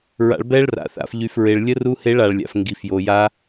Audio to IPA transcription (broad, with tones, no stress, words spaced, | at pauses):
ɹa̰˨ɭbɛ˦˥ɭra̰˨θa̰˨f ʎy˨fɹe˨ɭlʲə˦˥ru˦˥ he˦˥ɭa˨ɭlʲa̰˨f ŋɡi˨fjo˨ja˦˥